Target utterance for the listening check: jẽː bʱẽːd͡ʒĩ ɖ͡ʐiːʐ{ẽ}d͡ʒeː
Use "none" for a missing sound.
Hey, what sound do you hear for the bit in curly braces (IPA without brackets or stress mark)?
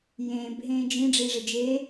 e